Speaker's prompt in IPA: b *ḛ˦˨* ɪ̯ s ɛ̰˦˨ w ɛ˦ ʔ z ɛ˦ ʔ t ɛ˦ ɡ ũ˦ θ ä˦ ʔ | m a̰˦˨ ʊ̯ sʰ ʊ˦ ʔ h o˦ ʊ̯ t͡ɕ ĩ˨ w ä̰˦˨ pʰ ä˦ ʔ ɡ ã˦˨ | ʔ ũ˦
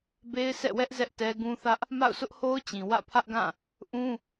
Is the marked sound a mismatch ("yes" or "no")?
yes